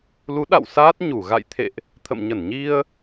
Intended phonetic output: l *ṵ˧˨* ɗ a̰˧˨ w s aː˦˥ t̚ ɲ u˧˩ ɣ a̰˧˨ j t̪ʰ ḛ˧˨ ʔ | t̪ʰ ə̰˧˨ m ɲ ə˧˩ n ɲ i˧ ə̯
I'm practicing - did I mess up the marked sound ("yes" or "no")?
yes